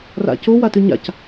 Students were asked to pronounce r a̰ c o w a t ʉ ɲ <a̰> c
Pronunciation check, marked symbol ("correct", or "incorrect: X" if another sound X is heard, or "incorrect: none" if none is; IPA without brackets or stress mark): correct